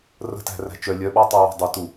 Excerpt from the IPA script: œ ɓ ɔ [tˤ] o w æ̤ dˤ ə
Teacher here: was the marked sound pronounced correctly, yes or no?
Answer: yes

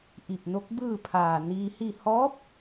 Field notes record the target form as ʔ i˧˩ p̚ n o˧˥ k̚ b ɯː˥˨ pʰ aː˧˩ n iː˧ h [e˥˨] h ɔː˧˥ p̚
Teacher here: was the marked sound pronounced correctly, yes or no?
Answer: no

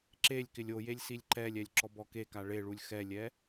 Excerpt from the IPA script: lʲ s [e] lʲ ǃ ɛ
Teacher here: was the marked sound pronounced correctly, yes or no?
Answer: no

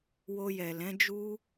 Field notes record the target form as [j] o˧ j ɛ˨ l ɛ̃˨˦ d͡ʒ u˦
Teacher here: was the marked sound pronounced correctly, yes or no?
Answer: no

